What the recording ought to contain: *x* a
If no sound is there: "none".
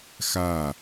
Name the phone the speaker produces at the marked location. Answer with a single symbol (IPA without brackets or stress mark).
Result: x